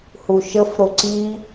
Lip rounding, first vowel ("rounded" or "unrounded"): rounded